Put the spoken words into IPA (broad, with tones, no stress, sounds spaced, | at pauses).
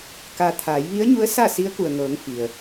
k a˧ t̪ʰ aː˩˧ j ʋ i˧˥ ə̯ ɲ u˧˥ ə̯ s a˥˨ s i˧˥ ə̯ k u˩ ə̯ ŋ ɤː˩˧ ŋ f i˩ ə̯